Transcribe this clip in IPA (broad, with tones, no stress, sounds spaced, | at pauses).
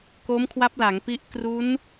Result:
k o˦˥ m kʰ w a˦˥ p̚ l a˩˦ ŋ p i˦˥ ʔ k r u˦˥ n